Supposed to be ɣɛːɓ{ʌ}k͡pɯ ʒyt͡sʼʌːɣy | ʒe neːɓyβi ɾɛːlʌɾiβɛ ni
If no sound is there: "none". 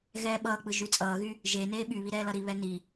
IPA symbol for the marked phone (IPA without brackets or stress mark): ʌː